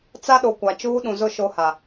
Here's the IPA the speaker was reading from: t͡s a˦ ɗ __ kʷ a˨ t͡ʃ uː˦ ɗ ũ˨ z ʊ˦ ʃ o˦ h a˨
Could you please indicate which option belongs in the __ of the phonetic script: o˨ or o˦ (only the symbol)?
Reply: o˨